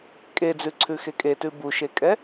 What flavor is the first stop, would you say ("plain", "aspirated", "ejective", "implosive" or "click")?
ejective